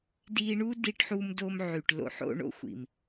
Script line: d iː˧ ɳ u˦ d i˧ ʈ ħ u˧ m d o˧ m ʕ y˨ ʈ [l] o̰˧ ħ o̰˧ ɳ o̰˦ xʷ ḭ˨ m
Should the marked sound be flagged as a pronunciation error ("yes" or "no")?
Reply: no